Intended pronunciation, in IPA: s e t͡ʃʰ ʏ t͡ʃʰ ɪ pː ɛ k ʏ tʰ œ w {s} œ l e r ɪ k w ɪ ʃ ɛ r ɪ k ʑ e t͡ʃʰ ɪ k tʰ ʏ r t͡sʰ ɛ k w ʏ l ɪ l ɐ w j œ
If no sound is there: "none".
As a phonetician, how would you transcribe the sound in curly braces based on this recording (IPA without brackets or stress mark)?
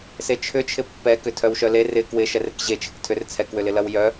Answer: ʃ